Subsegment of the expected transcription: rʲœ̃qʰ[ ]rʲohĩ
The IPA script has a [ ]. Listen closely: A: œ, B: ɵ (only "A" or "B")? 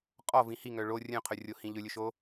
A